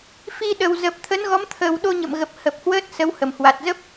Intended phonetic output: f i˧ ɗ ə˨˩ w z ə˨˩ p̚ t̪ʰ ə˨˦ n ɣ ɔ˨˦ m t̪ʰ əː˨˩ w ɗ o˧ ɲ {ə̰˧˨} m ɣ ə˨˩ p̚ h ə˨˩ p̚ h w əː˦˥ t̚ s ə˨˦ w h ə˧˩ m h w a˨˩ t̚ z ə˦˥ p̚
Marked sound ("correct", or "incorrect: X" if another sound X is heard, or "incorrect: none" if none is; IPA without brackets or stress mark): correct